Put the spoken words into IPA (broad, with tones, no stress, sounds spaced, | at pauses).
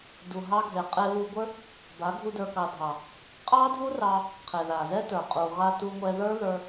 d u˨ ɦ ɑ˧ ɡʱ e˨ qʼ e˧ β u˧ ɡʷ ə˞˦ | b a˨˦ ɡʱ u˦ d ə˞˧ k ɑ˧ dʱ ɑ˨ | qʼ ɑ˦ dʱ u˦ r ɑ˧ | qʰ e˨ ð a˨ z ɛ˦ t ə˞˨ qʼ u˨ ʁ a˧ t u˧ ŋʷ ɛ˧ ð ə˞˦ ð ə˞˧